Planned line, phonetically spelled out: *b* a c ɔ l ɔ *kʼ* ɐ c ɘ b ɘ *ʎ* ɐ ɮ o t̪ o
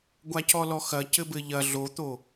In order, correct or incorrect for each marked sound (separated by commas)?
incorrect, incorrect, correct